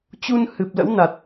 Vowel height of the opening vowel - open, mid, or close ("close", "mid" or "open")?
close